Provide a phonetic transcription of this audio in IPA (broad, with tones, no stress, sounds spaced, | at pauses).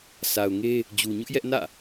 s a˨ ʊ̯ ŋ e˦ | d͡ʑ u˨ ɲ ʊ˦ ʔ j ɛ˦ ʔ n ä̰˦˨